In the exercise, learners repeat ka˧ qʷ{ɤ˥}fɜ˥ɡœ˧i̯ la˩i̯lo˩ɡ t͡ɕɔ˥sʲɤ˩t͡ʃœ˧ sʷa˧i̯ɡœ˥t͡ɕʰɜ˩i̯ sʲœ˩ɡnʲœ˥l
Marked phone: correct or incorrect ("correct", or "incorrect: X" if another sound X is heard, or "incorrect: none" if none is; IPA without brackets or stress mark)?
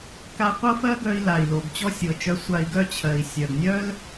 correct